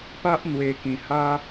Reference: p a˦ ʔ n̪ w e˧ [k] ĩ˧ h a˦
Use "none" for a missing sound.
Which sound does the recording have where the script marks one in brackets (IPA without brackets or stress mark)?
k